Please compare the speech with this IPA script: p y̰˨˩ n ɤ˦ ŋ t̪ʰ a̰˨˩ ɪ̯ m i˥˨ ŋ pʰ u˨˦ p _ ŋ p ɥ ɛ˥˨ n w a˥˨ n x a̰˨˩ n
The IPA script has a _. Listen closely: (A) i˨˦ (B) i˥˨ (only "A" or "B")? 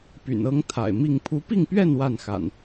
B